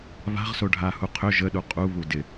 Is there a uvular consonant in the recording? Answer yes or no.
yes